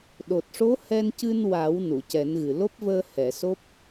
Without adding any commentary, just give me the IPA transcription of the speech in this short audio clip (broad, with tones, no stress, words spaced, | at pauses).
ɗo˨˩t̚ʂo˧˥ hɛ˧ncɨ˧n wa˨˩˦w nu˨˩˨cɛ˨˩˦nɣɨ˨˩ lo˦˥p̚vəː˧ hɛ˨˩˨so˦˥p̚